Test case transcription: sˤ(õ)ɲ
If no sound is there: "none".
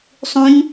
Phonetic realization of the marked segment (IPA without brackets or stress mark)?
ũ